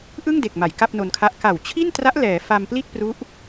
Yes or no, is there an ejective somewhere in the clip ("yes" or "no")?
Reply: no